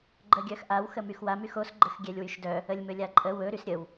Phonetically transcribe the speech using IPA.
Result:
ɡ͡ǃ ə ɡʲ œ x ʔ a w x ə m y x w a m y x o s ɡ͡ǃ ə x ɡʲ ɛ lʲ w y ʃ d œ | ə lʲ m ɵ lʲ a ǃʼ ə w ɵ ɾ y s ɾʲ ə w

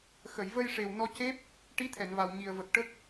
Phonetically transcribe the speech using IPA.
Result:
x ə˨˩˨ j v ə˧ j ʂ e˨˩ w n ɔ˧ c e˦˥ p̚ | ʈ i˧˥ t̪ʰ ɛ˨˩˨ n v a˨˩ w ɲ i˨˩ ə̯ v ə˨˩ k̚ ʈ ə˦˥ k̚

